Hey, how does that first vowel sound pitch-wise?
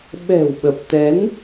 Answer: low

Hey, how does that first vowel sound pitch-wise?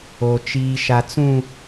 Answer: low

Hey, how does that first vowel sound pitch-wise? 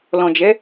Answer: low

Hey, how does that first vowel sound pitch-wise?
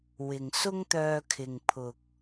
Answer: low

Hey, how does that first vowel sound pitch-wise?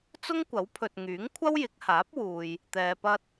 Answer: high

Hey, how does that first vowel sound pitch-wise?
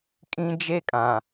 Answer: high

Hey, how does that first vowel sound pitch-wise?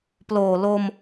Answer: low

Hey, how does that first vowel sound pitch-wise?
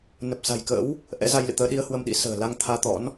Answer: low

